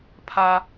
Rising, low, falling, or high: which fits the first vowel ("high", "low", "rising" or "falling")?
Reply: low